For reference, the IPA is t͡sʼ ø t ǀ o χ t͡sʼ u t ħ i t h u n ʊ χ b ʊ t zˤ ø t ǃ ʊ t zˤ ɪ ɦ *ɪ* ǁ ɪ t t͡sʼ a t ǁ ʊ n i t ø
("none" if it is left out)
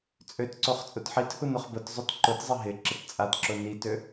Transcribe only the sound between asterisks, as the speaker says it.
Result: ɪ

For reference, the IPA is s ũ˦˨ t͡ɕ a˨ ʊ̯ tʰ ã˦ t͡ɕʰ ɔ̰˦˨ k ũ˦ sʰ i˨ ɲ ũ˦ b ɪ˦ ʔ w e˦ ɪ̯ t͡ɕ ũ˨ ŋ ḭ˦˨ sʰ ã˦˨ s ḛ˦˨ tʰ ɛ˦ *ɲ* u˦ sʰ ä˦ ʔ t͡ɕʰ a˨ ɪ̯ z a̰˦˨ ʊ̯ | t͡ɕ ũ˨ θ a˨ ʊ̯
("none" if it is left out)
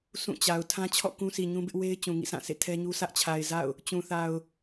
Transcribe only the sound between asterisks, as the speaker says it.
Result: ɲ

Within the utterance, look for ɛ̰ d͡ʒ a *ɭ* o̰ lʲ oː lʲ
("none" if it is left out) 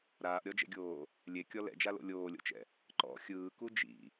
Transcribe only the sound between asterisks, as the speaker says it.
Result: l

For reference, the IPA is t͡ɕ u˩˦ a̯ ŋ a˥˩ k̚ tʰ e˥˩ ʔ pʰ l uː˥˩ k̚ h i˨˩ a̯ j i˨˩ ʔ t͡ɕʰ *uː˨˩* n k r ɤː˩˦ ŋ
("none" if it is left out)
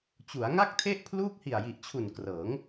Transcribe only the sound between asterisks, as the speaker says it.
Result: u˨˩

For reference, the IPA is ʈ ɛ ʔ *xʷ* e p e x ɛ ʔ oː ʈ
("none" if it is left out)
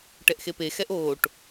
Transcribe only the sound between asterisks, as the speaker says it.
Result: x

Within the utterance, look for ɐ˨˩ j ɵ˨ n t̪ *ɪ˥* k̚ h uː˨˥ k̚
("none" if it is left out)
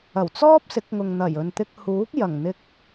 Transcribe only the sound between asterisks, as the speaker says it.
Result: ɪ˧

